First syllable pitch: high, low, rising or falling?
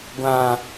low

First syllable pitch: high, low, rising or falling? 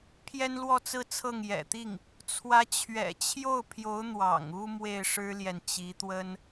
high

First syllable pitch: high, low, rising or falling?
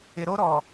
low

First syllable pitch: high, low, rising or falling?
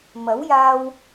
rising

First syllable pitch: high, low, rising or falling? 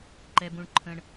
high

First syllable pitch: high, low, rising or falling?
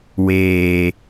low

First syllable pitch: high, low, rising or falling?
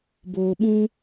low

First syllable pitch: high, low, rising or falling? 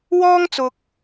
high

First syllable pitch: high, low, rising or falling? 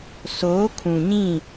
rising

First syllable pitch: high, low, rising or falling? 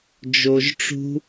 low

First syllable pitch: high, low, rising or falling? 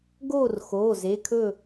falling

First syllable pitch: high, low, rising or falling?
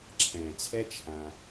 low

